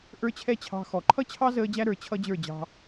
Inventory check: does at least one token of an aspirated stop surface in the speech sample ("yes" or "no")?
yes